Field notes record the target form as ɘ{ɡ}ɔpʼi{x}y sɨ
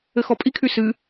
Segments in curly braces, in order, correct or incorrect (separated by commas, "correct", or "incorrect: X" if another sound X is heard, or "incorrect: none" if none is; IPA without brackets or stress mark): incorrect: x, incorrect: kʰ